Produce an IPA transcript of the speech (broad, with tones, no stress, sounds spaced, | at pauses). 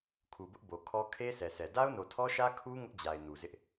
kʰ u˨ b ʊ˦ ʔ b o˨ kʰ ɔ˦ kʰ e˦ s ɛ˨ s ɛ˨ d a˦ ʊ̯ n o˨ tʰ ɔ˦ ʃ ä˦ kʰ u˦ ŋ ʊ˦ ʔ d͡ʑ a˨ ɪ̯ n u˨ z ɪ˦ ʔ